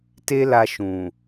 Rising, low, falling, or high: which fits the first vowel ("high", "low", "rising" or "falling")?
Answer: high